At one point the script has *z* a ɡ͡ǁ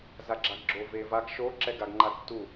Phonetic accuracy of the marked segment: correct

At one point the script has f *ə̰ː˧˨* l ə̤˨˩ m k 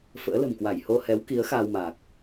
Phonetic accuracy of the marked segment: incorrect: ə̰ː˧˥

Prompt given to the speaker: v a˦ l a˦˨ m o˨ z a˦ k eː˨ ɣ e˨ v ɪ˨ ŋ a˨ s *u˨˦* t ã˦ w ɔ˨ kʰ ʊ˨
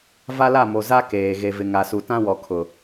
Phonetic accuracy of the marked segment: incorrect: u˨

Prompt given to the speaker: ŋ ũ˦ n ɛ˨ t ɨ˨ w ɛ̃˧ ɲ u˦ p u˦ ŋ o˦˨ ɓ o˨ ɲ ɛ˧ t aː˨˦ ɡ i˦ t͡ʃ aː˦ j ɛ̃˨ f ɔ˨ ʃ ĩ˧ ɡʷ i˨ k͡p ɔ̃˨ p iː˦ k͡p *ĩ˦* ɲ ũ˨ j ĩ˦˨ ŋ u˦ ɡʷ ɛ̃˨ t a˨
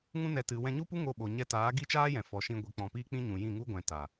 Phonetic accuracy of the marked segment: correct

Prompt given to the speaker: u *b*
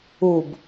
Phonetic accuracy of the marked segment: correct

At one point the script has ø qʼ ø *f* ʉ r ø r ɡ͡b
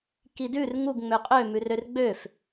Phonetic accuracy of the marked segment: incorrect: m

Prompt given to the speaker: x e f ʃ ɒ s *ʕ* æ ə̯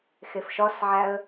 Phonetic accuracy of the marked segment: correct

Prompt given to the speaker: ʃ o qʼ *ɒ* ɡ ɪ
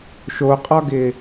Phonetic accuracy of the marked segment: correct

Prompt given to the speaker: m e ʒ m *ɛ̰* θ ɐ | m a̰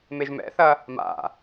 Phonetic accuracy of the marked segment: correct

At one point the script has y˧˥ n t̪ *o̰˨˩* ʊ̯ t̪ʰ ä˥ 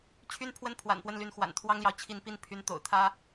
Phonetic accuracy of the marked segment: correct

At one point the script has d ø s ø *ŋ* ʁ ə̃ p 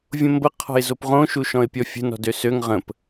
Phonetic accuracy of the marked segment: correct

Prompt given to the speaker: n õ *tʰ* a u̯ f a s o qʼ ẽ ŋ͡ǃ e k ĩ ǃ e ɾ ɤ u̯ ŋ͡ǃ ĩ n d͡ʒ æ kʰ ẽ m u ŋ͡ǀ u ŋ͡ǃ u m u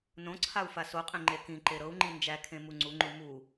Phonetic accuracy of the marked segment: incorrect: ǀʰ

